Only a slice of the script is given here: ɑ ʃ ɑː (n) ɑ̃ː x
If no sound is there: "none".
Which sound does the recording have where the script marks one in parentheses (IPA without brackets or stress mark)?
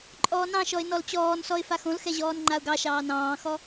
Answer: n